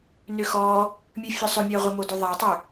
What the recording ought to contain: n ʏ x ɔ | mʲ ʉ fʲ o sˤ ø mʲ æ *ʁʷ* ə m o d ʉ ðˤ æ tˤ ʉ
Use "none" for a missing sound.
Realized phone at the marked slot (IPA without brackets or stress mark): ʁʷ